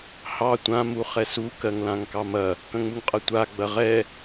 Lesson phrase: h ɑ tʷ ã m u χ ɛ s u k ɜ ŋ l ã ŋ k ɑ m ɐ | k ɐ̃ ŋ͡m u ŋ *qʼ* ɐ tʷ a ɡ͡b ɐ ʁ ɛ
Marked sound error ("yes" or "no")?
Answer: no